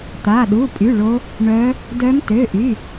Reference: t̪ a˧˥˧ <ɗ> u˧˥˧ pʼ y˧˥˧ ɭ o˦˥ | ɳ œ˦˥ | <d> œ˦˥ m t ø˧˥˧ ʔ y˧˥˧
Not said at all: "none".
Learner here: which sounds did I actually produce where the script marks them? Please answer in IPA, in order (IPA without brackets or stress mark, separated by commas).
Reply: ɗ, d